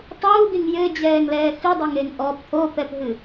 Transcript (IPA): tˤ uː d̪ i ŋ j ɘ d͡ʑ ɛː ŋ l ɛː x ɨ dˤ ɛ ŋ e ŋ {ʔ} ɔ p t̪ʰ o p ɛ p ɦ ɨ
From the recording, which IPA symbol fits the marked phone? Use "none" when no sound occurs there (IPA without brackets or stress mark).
ʔ